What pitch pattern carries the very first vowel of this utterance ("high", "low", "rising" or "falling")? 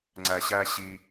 low